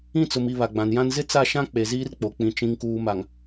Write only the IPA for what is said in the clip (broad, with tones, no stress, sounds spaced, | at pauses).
ĩ˦˨ t͡s ʊ˨ m i˨ β a˨ ɡ͡b ã˨ n j ã˦ n z ɪ˦ t͡s a˦˨ ʃ ã˦ k͡p e˨ z iː˦ r k͡p o˨ k͡p ĩ˨ t͡ʃ ĩ˨ ŋ k uː˨ m a˨ ŋ